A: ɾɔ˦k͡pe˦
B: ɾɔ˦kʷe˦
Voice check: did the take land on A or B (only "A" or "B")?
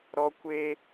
B